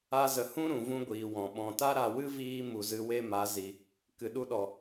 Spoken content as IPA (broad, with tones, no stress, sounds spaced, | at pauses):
a˧ z ə˨ h ũ˦ ɾ ũ˨ v ũ˦ ɡʷ iː˨ w ɔ̃˨ ɓ ɔ̃˨ t a˦ ɾ a˨ w ɨ˦ v iː˦ m u˨ z ɨ˧ w e˦ m a˨˦ z i˨ | k ɨ˨ ɗ u˧ ɗ ɔ˨